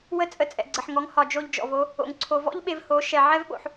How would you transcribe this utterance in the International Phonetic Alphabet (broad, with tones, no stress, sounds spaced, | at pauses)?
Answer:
w ə˦ t͡sʼ ə˧ t͡sʼ ɛ̰˨ ɡ͡ǀ ə˨ ħ ŋ ɔ˨˦ ŋ h ɒ˨ d͡ʒ o˧ ʎ d͡ʒ ɔ̰˨ v o˦ | o̰˧ ŋ ǀʰ o˧ v ɔ̰˦ ʎ ɓ e˧ v h o˨˦ ʃ ɛ˧ ʕ ɛ˦ v ɓ o̰˧ ħ